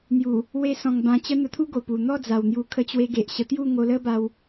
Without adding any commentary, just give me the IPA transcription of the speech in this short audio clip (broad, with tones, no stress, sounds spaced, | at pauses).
n̪ j u˨˩ | w e˧ s ɔ̃˨˩ ŋ b ã˧ t͡ɕ ə˦ n̪ ə˧ t̪ʰ u˦ ɡ o˨˩ p u˨˩ n̪ ɔ˥˧ d͡z a˨˩ w n̪ j u˧ kʰ ə˧ t͡ɕ w e˧ ɡ e˨ ʔ ɕ ə˧ t̪ j u˥˧ ŋ o˧ l ə˦ b a˧ w